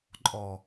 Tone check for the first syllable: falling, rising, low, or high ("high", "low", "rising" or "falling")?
low